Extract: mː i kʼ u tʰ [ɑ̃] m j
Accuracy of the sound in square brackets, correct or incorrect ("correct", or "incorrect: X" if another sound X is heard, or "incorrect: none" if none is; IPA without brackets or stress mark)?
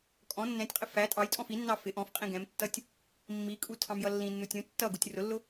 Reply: correct